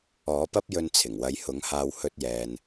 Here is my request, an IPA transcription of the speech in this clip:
ɔː˨˥ p ɐ˥ p̚ j ɵ˧ n t͡sʰ ɪ˨˩ ŋ w ɐ˨˧ j h ʊ˨˥ ŋ h aː˧ w h ɵ˧ t̚ j ɛː˨ n

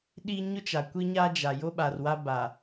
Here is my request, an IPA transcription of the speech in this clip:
ɗ i˦ ɲ ʊ˦ t͡ʃ a˨ kʷ i˦ ɲ a˦ d͡ʒ a˨ j o˦ ɓ a˨ r w a˦ b a˨

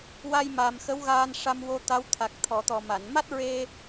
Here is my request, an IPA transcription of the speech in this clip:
w a˧ j m a˨˩ m x ə˧˥ w ɣ aː˧ n ʂ a˧ m w o˧ t̪ a˧˥ w t̪ʰ a˨˩ k̚ t̪ʰ ɔ˨˩˨ t̪ ɔ˨˩ m a˨˩˨ n m a˦˥ t̚ ɹ e˧

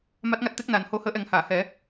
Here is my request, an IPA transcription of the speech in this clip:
m a˦˥ t̚ ŋ a˦˥ t̚ t̪ e˦˥ k̚ n aː˨˩ n h o˧˥ h əː˧˥ ʔ ɛ˨˩˦ ŋ h aː˨˩˨ h ɛ˨˩˦

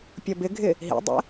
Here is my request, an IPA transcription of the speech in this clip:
pʲ ʌ b ɪ ɡʱ ɪ | ɦ ḭ dˤ ɛ̰

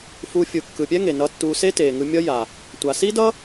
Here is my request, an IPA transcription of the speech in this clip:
f u˧ fʲ ɯ˨ kː ɯ˨ pʲ ɛ˦ ŋ e˨ n ʌ˧ tː uː˧ s e˦ t eː˨ ŋ ɯ˧ mʲ ʌ˦ j a˨ | tʷ a˨ s i˦ d ʌ˦

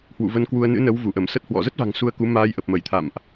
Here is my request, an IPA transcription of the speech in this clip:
h w ṵ˧˨ v ə˧ n k w u˧ ə̯ n ɨ̰˧˥ n ə˨˦ w v u˧˩ ʔ ə˧˩ m s ə˦˥ t̚ h w ɔ̰˧˨ z ə˦˥ t̚ v a̤˨˩ ŋ s u˧ ə̯ k u˨˦ m aː˧ j ʔ ə˨˩ p̚ m ə˧˩ j t̪ʰ a̰˧˨ m ʔ

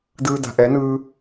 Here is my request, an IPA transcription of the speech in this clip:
d ɯː˧ d a̤˨ ʔ ɛ˨˦ n ɯː˧

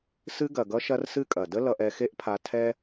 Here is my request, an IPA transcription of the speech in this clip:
s ɨ˧ ɡ ɐ˨ ɡ ʌ˧ ʃ ɐ˧ r s ɨ˦ kʼ ɐ˨ d ə˦ l ʌ˧ ʔ ɛ˧ x e˦ ʔ pʰ a˧ tʰ ɛ˦

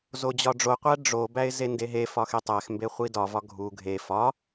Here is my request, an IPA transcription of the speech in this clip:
z o d͡ʑ ɒ ɖ͡ʐ o qʷ æ ɖ͡ʐ o b æ ɪ̯ z e n d e ɦ e f ɒ x e tˤ æ x m b e χʷ i d ɒ v ɒ ɡʱ u ɡʱ e f ɒ

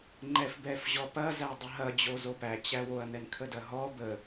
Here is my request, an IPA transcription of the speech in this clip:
ŋ͡ǃ ɛ f b ɛ f ʑ ɔ p ɐ z æ dˤ ə ɦ ɐ d͡ʑ o z o p æ t͡ɕ æ w o ɐ̯ n ɛ n kʰ ə d ɐ ɦ ɔ b ə

